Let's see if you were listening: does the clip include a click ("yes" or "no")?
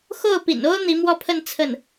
no